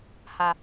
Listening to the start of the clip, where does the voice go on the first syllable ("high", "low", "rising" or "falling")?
low